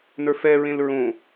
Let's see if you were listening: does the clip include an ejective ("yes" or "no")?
no